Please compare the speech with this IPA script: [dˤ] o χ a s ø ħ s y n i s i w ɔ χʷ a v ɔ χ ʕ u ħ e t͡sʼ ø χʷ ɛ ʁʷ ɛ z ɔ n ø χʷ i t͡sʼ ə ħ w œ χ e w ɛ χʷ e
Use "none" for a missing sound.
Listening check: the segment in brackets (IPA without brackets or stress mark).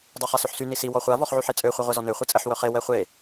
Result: dˤ